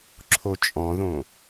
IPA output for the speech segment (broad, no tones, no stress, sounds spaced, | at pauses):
ǁʰ o t͡ʃʼ ɔ̃ ð õ